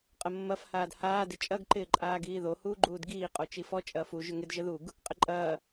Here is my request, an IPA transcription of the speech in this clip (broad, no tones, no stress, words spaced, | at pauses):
qʼəmːɐf haːdhaː dɪt͡ʃʼɐɡ ǃɪːǃʼaːɡiːðo huːɡ͡ǃuːdɡiː qʼot͡ʃifɔ t͡ʃʼɐːfu ʒʏŋɪd ʒəðuɡ | qʼɪǃʼɐː